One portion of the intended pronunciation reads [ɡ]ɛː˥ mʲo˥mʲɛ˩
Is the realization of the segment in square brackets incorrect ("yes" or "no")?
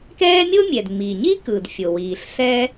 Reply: yes